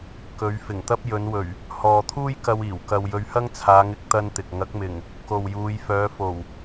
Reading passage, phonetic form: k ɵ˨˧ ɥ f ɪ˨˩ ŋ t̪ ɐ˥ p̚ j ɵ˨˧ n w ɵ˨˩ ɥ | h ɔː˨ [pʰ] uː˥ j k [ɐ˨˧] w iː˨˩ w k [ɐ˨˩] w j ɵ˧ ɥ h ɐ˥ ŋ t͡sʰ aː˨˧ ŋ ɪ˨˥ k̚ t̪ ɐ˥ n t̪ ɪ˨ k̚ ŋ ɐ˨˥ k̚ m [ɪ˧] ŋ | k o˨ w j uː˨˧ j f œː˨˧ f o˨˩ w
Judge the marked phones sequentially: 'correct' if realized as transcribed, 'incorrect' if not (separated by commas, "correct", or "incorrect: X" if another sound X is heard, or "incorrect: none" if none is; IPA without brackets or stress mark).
incorrect: t̪ʰ, incorrect: ɐ˧, incorrect: ɐ˧, incorrect: ɪ˨˩